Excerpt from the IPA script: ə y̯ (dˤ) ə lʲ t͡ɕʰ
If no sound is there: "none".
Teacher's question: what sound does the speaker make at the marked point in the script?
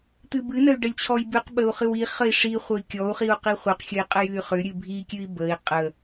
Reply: ɖ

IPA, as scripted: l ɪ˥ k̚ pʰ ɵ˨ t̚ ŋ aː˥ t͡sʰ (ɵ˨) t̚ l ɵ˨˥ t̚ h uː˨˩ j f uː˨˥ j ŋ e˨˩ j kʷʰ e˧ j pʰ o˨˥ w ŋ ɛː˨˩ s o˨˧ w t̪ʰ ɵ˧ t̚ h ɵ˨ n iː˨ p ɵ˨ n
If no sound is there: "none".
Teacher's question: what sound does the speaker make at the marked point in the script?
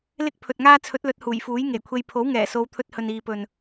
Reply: ɵ˨˥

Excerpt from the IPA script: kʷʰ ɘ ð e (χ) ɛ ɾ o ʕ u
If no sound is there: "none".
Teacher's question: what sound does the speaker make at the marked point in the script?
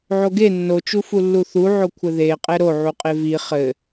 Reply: qʼ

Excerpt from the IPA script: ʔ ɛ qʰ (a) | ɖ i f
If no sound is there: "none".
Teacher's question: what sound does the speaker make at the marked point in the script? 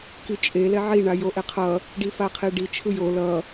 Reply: ʌ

